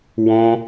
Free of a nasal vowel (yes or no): no